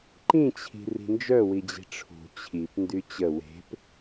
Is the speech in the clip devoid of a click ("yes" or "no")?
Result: no